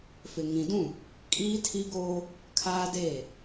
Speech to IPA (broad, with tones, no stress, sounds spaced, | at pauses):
f ɪ˨ ŋ ĩ˨ d ũ˦˨ | kʼ iː˦ tʰ i˦ ɡ oː˦ | kʰ aː˦ d eː˦˨